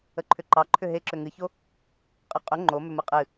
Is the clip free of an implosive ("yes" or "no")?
yes